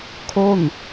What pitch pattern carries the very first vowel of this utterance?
falling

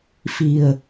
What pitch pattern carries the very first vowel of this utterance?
low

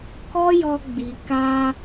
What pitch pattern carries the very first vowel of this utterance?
high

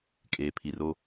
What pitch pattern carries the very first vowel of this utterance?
low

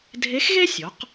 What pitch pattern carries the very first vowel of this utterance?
rising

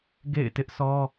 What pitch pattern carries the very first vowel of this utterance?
falling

